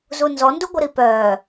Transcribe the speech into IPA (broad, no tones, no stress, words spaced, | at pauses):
zunzɔnduɡʷə ɾipœ